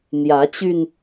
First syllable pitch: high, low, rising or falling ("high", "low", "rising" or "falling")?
rising